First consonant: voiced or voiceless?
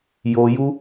voiced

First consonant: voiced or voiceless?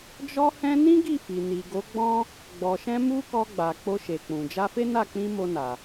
voiced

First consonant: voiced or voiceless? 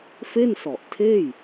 voiceless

